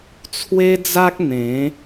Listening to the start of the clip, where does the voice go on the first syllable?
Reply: high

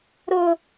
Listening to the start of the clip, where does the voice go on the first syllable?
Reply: high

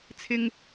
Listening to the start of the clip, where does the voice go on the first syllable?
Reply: low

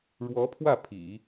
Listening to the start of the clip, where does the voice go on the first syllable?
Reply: rising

